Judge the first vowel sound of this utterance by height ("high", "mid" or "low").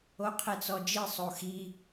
mid